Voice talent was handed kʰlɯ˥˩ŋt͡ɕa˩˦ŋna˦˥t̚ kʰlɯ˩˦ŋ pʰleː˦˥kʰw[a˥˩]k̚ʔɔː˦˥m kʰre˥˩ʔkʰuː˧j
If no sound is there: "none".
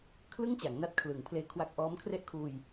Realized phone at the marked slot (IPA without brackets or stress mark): a˦˥